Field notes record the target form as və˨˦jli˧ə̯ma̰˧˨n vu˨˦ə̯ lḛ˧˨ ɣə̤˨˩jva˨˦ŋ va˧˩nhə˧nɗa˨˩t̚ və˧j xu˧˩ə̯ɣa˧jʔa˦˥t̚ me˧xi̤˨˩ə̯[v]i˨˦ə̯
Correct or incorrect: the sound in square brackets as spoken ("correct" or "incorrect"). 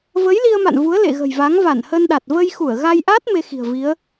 correct